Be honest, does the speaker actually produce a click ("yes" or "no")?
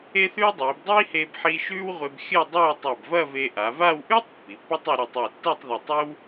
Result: no